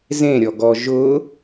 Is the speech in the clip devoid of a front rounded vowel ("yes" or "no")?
yes